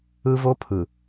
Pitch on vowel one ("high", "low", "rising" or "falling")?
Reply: high